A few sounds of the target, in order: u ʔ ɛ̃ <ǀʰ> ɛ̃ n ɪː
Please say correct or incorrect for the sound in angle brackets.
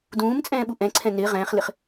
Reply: correct